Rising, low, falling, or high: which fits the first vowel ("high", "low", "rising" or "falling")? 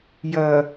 low